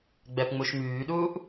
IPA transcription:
ɡ͡b ɛ p ŋ͡m u ʃ m yː ɗ uː ʔ

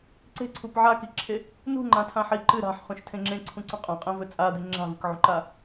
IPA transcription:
ǀ e̤ ǀʰ u p ʕ a k i ǁʰ e | n ṳ ŋ͡ǃ ã tʰ ã ħ i ǃ ɨ ɾ a̤ ħ χ ũ ʃ tʰ ẽ ŋ͡ǁ ẽ ǀʰ ũ ǀ ũ qʼ ã qʼ ẽ v ɵ t͡sʼ a d̪ i ŋ͡ǁ a̤ v ɨ k ʕ ṳ ǃ a

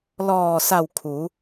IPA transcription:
l ɔː˧˩ s a˧˩ w kʰ u˩˧

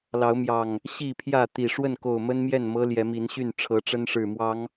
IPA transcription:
l ɑ˨˦ ʊ̯ m j ɑ˨˩ ŋ | ɕ i˥˨ pʰ j ä˥˨ t̪ i˨˩ ʂ w ə˥˨ n k o˨˩ ʊ̯ m ə˦ n m j ɛ˥˨ n m ɤ˦ l j ɛ˨˦ m i˨˦ n ɕ y˥˨ n ʈ͡ʂʰ ɤ˨˦ ʈ͡ʂ ə˦ n ʂ ɻ̩˨˩ m w ɑ˨˦ ŋ

